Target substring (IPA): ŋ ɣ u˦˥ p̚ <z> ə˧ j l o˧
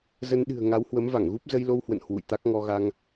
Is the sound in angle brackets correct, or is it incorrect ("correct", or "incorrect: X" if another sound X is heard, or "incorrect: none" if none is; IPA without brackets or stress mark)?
correct